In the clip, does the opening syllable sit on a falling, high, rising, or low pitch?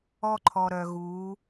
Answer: high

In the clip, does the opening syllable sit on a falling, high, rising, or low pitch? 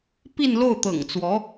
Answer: falling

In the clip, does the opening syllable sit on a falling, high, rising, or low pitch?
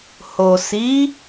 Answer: low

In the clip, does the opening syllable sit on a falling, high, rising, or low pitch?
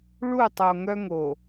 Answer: falling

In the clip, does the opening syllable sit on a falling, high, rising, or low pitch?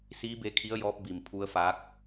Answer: rising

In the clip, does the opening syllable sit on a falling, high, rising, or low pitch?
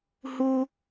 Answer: high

